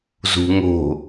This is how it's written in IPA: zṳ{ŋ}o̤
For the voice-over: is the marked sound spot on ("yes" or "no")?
yes